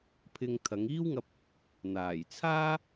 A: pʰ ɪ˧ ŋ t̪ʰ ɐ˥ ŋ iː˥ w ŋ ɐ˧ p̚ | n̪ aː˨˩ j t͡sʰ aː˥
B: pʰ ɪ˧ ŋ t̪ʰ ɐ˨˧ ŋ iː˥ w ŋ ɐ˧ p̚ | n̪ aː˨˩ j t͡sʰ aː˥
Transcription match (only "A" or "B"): B